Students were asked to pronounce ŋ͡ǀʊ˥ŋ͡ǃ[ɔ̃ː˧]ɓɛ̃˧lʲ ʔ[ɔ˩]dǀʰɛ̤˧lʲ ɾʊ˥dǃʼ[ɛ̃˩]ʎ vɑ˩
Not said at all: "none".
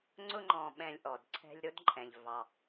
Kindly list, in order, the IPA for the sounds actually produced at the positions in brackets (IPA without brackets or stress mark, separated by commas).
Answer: ɔ̃ː˧, ɔ˩, ɛ̃˩